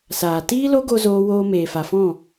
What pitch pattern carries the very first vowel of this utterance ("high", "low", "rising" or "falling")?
low